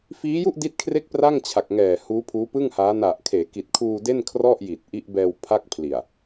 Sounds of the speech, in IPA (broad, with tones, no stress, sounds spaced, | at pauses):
f iː˦˥ j u˥˩ ʔ d i˦˥ t̚ kʰ r e˦˥ k̚ p r a˥˩ ŋ t͡ɕʰ a˨˩ k̚ ŋ ɛː˨˩ h uː˦˥ pʰ uː˦˥ p ɯ˥˩ ŋ h aː˦˥ n a˨˩ ʔ kʰ eː˩˦ k i˨˩ t̚ kʰ uː˧ d e˥˩ n kʰ r ɔ˥˩ ʔ j i˨˩ t̚ ʔ i˦˥ ʔ b ɛː˧ w pʰ a˥˩ k̚ pʰ l i˨˩ a̯